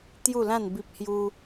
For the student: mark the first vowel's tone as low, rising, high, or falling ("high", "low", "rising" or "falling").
falling